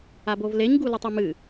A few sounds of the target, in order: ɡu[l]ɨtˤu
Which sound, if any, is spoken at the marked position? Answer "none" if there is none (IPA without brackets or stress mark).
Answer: l